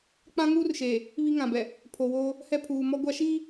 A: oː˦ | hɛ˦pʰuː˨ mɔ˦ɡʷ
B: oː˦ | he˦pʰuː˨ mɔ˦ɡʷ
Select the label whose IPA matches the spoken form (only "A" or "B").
A